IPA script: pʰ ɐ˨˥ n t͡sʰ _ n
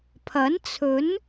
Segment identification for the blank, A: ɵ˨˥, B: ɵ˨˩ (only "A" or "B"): A